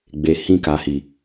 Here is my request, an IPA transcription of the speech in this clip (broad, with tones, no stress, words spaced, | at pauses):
ɡ͡be˨ hĩ˧ka˨hi˨